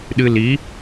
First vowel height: high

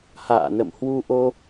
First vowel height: low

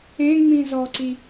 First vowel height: mid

